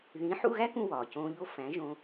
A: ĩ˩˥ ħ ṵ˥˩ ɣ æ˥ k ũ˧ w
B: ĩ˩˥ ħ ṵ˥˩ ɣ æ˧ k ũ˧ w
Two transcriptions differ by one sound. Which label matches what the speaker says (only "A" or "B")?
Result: A